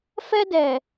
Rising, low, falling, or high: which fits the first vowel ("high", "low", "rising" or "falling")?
high